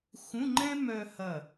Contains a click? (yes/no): yes